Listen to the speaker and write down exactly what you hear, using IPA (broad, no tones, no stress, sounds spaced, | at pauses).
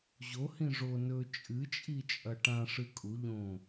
ʑ o h ĩ ʐ o n ɵ t͡ʃʼ ɨ t͡ʃʼ i t͡ʃʼ ɐ ʈ ã ʂ ɨ kʼ u ʎ õ